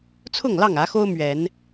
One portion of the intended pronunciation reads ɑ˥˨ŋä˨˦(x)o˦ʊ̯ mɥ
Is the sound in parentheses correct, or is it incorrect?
correct